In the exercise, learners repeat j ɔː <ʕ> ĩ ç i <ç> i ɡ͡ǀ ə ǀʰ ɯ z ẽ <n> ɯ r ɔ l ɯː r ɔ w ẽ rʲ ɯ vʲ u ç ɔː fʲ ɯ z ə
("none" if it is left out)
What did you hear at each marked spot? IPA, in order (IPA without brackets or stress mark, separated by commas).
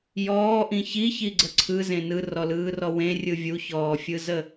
ʔ, ç, n